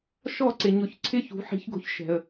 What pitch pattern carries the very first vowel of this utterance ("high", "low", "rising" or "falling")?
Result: falling